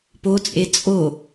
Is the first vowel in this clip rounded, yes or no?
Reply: yes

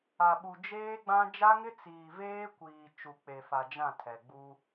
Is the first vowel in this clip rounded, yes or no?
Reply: no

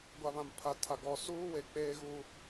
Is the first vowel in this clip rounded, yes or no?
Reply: no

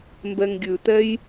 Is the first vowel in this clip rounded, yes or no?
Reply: no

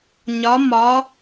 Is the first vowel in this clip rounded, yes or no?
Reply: yes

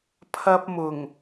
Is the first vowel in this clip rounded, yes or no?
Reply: no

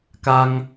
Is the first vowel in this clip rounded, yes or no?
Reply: no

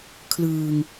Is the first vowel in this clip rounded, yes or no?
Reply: no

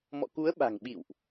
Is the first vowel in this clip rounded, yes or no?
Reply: yes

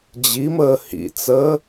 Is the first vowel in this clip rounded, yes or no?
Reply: no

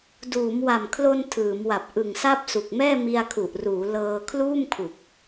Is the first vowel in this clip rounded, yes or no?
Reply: yes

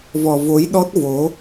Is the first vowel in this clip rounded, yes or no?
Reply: yes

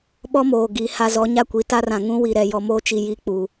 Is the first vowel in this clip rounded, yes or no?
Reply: yes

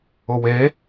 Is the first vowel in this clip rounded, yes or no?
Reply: yes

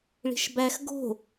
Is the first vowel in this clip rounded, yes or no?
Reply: no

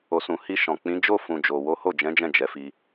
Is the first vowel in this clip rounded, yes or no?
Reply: yes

